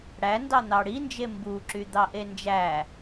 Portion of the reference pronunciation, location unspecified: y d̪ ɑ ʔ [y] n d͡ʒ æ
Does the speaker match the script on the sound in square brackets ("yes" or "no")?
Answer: no